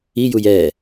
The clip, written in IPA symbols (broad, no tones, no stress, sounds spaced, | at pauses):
i j u j ɛ